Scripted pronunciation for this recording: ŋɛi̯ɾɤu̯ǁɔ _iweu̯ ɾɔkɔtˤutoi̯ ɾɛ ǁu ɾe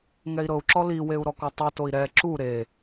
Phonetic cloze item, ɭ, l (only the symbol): l